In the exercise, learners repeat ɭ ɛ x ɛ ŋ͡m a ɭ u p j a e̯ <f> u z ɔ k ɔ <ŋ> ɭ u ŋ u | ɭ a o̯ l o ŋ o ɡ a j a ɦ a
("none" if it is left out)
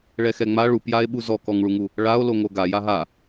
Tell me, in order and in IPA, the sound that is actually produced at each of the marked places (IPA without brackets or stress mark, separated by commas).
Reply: ɓ, ŋ